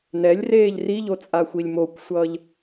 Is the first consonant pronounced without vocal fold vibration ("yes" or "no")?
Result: no